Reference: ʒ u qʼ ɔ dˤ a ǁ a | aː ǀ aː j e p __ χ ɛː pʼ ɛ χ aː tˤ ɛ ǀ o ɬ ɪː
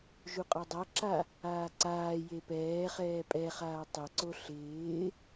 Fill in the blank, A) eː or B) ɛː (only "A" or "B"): B